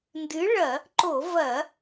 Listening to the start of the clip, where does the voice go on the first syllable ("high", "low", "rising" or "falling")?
rising